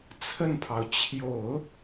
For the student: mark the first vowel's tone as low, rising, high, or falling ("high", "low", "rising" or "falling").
falling